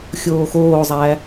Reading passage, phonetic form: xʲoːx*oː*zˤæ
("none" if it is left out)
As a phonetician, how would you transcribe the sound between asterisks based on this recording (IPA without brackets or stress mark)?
oː